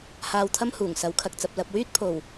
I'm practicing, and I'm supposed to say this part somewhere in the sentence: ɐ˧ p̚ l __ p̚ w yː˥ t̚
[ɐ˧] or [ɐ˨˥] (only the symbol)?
ɐ˨˥